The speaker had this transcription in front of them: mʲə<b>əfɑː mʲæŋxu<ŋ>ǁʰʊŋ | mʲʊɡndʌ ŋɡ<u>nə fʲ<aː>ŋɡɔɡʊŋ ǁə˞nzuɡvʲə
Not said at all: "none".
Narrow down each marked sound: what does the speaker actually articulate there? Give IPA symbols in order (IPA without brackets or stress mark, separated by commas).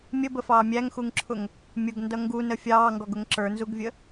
b, ŋ, u, ɑː